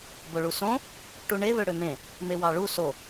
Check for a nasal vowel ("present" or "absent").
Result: present